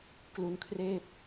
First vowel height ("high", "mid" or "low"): high